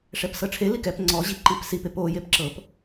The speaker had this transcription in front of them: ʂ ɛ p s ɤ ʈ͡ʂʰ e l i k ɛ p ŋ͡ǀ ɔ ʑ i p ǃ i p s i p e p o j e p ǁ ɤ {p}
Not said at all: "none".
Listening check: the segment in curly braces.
p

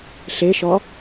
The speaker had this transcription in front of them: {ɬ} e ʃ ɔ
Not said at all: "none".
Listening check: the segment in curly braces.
ɬ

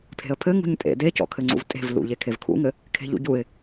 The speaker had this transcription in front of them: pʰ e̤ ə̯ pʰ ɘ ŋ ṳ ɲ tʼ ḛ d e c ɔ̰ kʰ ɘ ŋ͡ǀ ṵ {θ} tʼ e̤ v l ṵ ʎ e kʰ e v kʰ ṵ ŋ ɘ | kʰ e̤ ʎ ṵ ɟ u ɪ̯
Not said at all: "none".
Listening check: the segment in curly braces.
v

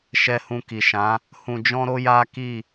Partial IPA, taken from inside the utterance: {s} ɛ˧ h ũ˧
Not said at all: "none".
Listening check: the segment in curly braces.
ʃ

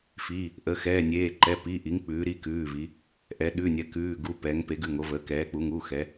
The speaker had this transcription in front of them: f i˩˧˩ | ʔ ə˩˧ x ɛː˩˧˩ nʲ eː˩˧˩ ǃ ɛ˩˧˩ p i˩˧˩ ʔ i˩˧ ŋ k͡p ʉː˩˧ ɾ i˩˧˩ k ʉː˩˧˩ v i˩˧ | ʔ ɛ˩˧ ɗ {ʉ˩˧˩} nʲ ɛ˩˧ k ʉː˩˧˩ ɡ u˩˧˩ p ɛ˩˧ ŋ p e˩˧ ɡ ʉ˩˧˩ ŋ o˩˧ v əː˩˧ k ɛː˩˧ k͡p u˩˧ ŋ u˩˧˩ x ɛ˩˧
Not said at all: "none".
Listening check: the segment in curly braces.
ʉ˩˧˩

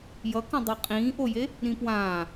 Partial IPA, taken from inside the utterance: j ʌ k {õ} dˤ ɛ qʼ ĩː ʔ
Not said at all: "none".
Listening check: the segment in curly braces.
õ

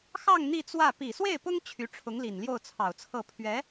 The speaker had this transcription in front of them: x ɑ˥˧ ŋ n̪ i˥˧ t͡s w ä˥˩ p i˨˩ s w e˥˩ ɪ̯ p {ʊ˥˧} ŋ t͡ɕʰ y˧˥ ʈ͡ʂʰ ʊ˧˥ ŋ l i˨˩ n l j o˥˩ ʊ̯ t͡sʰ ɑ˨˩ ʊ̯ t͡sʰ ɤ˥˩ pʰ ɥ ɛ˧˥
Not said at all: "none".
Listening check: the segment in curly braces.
ʊ˥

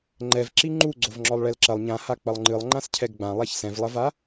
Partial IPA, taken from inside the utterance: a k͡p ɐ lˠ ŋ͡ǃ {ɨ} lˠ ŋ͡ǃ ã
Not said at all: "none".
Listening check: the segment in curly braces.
ɨ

